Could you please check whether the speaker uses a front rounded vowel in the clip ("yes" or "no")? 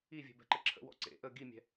no